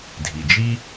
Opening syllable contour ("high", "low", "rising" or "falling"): low